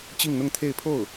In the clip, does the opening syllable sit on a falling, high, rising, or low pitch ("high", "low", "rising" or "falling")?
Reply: falling